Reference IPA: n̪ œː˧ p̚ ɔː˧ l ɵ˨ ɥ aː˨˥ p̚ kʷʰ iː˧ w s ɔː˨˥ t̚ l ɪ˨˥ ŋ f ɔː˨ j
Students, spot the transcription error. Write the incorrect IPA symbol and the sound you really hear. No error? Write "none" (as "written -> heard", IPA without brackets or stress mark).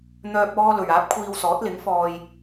none